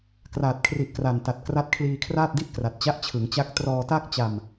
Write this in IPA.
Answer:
k r aː˨˩ t̚ kʰ r i˨˩ ʔ k r a˨˩ n t a˨˩ t̚ k r a˦˥ t̚ kʰ l iː˧ kʰ r aː˥˩ t̚ d i˥˩ ʔ k r a˨˩ t̚ t͡ɕ a˦˥ ʔ t͡ɕʰ ɯ˩˦ ŋ t͡ɕ a˦˥ k̚ t r ɔː˧ t a˥˩ k̚ t͡ɕ a˧ m

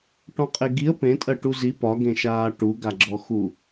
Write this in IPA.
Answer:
ʈ ɔ̃ qʼ e ɡ i ə̯ p ẽ tʼ ɜ ʈ u z i p ɒ ɡ ẽ ʃ aː ʈ u ɡ a ɡ͡ǁ ɔ x u

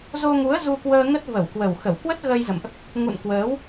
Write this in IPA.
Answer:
z o˧ ŋ u˨˦ ə̯ z u˧ k w əː˧ ŋ ə˦˥ t̚ v ə˧˩ w k w ə˨˩ w x ə˧˩ w k w ə˦˥ t̚ ɣ ə˧ j z ə̰˧˨ m ʔ | ŋ ṵ˧˨ n k w əː˨˦ w

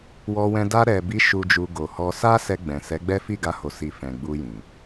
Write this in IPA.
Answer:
w ɔ˧ w ɛ̃˧ d a˧ ɾ ɛ˨ b i˨˦ ʃ u˧ d͡ʒ u˧ ɡ o˨ h ɔ˧ s a˦ s ɛ˧ ɡ͡b ɛ̃˨ s ɛ˨˦ ɡ͡b ɛ˦ f i˦˨ ɡ a˧ h o˨ s i˨ f ɛ̃˨ ɡ͡b u˧ j ĩ˨

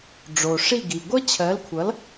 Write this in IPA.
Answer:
ɖ͡ʐ o˩ ʂ i˥˩ ɡ i˩ ɡʷ ʌ˥ t͡ɕʰ ɜ˩˥ l kʷʰ ʌ˩˥ l

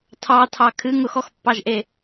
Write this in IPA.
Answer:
tʰ ɑ tʰ ɑ kʰ ɨ ŋ ʊ x ɔ x pː ɑ ʒ ʔ e

